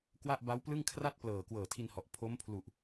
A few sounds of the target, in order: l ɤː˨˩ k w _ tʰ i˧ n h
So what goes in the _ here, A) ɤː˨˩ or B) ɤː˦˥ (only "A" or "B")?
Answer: A